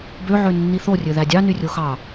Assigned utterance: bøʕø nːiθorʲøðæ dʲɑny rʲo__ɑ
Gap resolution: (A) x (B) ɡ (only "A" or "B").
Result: A